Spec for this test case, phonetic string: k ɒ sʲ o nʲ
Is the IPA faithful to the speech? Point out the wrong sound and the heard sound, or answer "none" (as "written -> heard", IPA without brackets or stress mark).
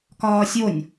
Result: ɒ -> ɒː